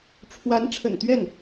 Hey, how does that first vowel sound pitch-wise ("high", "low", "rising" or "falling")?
rising